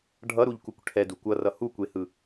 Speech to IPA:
ɖʱ ʌ ɾ u ʎ k u kʷ ʈʰ ɛ d u kʷ ʌ r ʌ h u kʷ e h ɯ

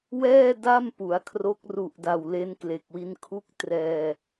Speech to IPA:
w ɛː˥˩ d a˥˩ m p u˩˦ a̯ kʰ r o˦˥ k̚ r u˨˩ ʔ d a˨˩ w l e˦˥ n k l e˨˩ k̚ w i˧ n kʰ u˥˩ k̚ t r ɛː˧

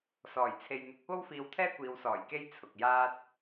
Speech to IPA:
s ɔː˨˩ j t͡sʰ e˨ j n̪ ɪ˨˥ k̚ p o˥ w f iː˧ w t̪ʰ ɛː˥ kʷ iː˨˧ w s ɔː˨˩ j k e˧ j t͡sʰ ʊ˨ k̚ j aː˥ t̚

